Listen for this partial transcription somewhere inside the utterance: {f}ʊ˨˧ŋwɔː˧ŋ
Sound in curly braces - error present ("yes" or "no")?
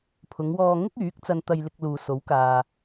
yes